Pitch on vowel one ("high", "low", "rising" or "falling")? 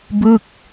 falling